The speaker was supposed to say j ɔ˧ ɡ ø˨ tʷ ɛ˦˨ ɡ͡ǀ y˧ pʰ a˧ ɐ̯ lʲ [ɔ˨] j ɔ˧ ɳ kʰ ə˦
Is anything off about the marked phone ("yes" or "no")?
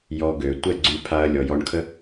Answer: no